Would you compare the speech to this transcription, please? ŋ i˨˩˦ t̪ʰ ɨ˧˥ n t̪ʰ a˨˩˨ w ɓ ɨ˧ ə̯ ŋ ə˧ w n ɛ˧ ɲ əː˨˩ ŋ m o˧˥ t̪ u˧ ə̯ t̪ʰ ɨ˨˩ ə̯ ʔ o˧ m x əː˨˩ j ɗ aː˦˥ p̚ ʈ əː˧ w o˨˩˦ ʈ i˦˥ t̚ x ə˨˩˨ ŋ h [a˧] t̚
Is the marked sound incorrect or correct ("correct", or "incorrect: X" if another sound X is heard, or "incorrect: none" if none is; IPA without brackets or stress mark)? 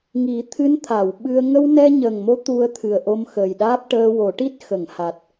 incorrect: a˨˩